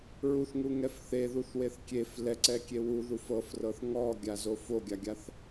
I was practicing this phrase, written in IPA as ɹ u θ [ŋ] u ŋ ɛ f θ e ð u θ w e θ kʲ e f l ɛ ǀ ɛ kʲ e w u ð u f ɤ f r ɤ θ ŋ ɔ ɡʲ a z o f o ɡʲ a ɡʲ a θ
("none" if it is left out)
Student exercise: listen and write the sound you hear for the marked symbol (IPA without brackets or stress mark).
ŋ